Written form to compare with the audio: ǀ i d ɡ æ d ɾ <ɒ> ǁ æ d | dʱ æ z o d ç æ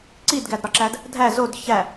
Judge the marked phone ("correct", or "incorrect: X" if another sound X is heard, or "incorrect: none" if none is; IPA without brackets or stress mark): correct